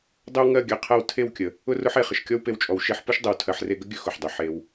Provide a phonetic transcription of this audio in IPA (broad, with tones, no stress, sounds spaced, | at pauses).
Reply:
dˤ ɵ˦ w ŋ ɜ˦˨ ɡʲ ɜ˨ qʰ ɜ˧ w tʰ e˦˨ w kʲ ə˨ | ʊ˦ r ʊ˦ ħ e˨ χ ə˨ ʃ kʲ ɔ˦ w p e˧ w t͡ʃʼ ɔ˨ w ʃ e˧ ħ p ʊ˦ ʃ dˤ ə˨ w tʰ ɜ˨ ħ r e˧ ɡ ə˦ ɡʲ ɵ˦ x ʊ˨ ħ dˤ ɵ˨ ħ e˧ w